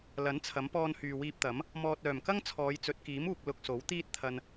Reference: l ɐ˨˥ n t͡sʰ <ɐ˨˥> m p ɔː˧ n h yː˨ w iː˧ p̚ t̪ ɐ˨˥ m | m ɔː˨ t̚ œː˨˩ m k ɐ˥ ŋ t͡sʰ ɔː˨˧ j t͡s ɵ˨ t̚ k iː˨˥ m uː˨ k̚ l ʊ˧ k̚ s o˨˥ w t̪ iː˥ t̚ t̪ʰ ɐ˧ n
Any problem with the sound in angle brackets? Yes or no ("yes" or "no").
no